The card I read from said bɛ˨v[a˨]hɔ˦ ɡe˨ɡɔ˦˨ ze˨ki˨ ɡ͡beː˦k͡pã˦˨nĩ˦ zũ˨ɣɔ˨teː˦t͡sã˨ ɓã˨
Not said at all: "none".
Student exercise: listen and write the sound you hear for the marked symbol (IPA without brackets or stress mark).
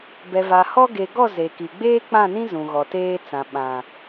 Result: a˨